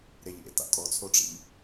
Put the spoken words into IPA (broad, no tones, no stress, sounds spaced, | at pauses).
ɾ e ʎ ḛ t a̰ tʼ ɔ t͡sʰ o ʈ͡ʂ ḭ ʎ